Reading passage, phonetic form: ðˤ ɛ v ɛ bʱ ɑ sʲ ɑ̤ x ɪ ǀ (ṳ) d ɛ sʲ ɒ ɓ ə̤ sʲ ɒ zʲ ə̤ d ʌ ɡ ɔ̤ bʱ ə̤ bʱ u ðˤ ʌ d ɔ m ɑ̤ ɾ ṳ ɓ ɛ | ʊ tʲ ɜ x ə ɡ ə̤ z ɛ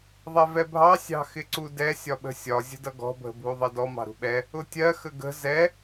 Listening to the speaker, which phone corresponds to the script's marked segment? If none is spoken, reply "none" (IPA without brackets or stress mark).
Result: u